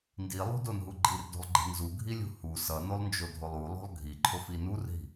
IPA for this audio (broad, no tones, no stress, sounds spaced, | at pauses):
n d i lˠ ṳ d o n ɦ u ɡ͡ǃ i r d o̤ lˠ ɡ͡ǃ i̤ n z u ɡʱ i lʲ ṳ h u s ʌ n o lˠ n d͡ʒ o dʱ o lˠ u lˠ o̤ lˠ ɡʱ i ǃʰ o f i n u r ɦ i̤